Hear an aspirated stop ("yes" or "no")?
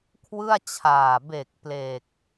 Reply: yes